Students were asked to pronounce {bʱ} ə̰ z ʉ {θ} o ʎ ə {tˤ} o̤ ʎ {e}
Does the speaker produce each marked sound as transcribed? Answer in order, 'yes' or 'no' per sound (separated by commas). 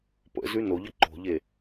no, no, no, yes